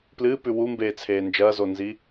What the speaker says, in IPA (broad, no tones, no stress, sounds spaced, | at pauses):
p l ɨː p ʉ w u m b eː t͡sʰ eː n d͡ʒ ɐː z o n z i